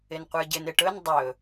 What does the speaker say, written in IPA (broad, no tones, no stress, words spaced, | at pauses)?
ɪnqʷə˞ɟɪn ɪʈɵn dˤɵ